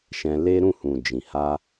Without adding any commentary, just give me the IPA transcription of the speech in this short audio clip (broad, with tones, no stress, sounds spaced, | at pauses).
ʃ ɛ̃˧ l e˦ ɾ ũ˦˨ h ũ˨ d͡ʒ ĩ˨ h a˧